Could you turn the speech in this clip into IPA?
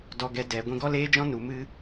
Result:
d ɔ˧ ɡ ɛ˧ d ɛ˨ ɡʷ ĩ˧ ɡ ɔ˦ l eː˦ d͡ʒ ɔ̃˦ n u˨ m ɨ˦

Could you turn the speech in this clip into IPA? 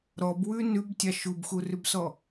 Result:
ɾ ɔ b w ʉ n ʉ b tʲ ɑ ʃ u b x u r ʉ b s ɔ

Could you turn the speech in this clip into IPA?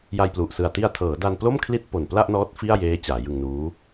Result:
j a˧ j p l u˨˩ ʔ s ɯ˨˩ a̯ t i˧ a̯ tʰ ɤː˩˦ d a˧ n p l o˥˩ m kʰ l i˥˩ t̚ p o˨˩ n p l a˥˩ ʔ n ɔː˦˥ t̚ f i˥˩ a̯ j eː˦˥ t͡ɕ aː˩˦ j ɯ˧ ŋ n uː˦˥

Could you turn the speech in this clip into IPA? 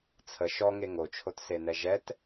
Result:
t͡sʰ ə ʃ ɔ ŋ e ŋ o t͡ʃʰ o t s e n ɛ ʒ ɛ t

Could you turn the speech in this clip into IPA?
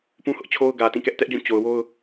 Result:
p ũ˦ h ʊ˦ ʔ t͡ɕʰ o˦ ʊ̯ ɡ ä˨ t ĩ˦˨ k ɛ˦ ʔ t ɛ˦ ʔ d͡ʑ ũ˦˨ t͡ɕ o˨ ʊ̯ w o˦ ʊ̯

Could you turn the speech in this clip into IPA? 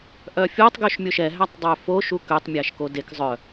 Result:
ʔ œ fʲ o tˤ ɡ ø ʃ mʲ o ʃ ɛ ɦ æ tˤ dˤ ø f o ʃ u k ø tˤ mʲ æ ʃ k o d e k zˤ œ

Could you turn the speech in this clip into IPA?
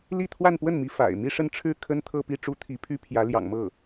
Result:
l i˥˧ t̪ʰ w a˥˧ n p w ə˥˩ n m i˧˥ f a̰˨˩ ɪ̯ m i˥˧ ʂ ə˥˧ n ʈ͡ʂʰ ɻ̩˥˩ kʰ ə˥ n t̪ʰ ɤ˥˧ p i˥˩ ʈ͡ʂ u˥ t̪ʰ i˧˥ pʰ y˥ pʰ j ä˧˥ l j ɑ̰˨˩ ŋ m ɤ˥˩

